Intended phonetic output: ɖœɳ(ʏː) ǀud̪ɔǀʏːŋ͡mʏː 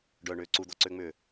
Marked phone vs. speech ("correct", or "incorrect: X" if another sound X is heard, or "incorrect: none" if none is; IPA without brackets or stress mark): correct